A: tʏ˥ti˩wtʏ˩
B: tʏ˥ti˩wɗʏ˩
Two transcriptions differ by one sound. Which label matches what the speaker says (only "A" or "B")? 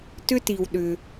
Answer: B